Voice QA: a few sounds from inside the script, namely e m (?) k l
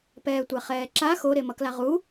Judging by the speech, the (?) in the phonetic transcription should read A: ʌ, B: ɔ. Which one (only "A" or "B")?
A